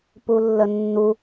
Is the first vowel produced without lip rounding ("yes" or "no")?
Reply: no